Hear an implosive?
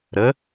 no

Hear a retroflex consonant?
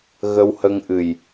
no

